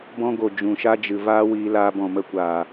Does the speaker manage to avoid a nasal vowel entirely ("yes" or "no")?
no